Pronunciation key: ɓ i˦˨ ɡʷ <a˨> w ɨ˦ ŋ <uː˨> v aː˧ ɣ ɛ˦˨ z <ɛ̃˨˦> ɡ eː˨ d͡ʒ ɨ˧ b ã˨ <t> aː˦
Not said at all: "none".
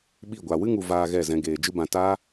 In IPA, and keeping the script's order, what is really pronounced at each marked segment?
a˨, u˨, ɛ̃˧, t

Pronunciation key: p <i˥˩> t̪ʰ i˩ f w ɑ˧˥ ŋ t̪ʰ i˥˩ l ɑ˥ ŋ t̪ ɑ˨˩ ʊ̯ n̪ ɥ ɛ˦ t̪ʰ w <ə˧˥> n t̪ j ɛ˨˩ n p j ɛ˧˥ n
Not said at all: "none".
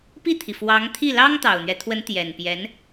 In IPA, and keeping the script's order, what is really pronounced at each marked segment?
i˥˩, ə˧˥

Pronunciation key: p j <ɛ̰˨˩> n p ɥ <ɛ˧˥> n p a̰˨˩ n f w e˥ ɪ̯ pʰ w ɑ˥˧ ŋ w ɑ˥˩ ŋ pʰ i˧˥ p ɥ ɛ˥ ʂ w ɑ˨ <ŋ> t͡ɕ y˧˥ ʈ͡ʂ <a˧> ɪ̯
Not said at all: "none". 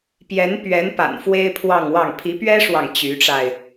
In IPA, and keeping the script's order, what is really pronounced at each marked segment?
ɛ˧˥, ɛ˧˥, ŋ, a˧

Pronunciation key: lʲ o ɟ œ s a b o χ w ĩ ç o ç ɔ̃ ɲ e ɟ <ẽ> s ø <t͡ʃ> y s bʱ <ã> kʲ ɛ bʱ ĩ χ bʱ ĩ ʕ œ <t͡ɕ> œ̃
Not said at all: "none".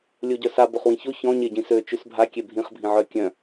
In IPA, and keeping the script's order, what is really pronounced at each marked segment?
ĩ, t͡ʃ, a, kʲ

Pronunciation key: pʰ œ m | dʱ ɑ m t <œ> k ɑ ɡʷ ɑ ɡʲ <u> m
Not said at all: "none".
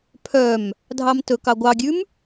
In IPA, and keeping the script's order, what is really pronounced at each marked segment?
ɵ, ʉ

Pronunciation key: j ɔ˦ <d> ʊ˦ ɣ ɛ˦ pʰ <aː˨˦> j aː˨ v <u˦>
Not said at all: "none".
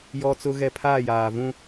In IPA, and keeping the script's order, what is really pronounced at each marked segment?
t͡s, aː˦˨, ũ˦

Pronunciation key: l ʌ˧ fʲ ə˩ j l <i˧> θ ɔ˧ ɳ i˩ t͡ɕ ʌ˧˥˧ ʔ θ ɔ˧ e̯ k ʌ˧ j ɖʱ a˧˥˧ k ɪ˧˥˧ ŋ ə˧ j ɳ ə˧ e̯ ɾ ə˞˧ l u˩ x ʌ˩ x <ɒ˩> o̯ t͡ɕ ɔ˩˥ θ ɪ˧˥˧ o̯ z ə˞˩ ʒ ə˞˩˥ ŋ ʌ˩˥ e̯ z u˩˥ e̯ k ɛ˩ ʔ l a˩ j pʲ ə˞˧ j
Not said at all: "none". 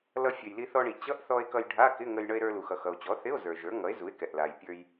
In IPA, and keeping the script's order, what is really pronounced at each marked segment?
i˧, ʌ˩

